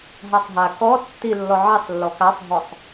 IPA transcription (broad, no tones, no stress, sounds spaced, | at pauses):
ɦ a sˤ ɦ a k ɔ tː i lː ɔ ʕ ɛ sˤ lː ɔ k a sˤ ɦ ɔ sˤ